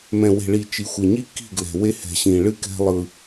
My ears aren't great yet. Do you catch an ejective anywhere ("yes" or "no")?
no